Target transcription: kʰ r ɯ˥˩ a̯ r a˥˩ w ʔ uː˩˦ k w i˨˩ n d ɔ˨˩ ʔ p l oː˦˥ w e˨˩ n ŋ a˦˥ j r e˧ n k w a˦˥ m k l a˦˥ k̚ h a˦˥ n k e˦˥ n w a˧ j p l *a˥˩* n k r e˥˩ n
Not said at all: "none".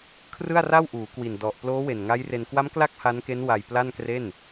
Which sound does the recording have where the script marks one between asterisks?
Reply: a˥˩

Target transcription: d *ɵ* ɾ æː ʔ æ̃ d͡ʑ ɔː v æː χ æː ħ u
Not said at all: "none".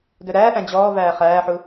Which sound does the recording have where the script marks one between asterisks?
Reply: ɵ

